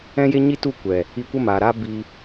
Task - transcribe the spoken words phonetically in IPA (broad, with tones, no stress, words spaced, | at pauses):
ɛ̃˦je˦ɲi˦tu˦˨ kʷɛ˨ | i˧kʷə˦maː˨ɾaː˦ bi˧